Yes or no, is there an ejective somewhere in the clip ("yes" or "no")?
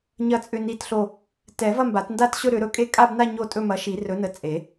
yes